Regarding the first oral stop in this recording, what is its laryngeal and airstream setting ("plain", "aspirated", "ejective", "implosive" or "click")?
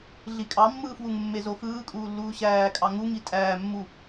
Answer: ejective